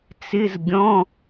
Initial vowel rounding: unrounded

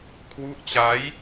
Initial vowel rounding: rounded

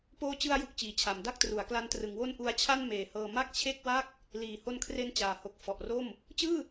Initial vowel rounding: rounded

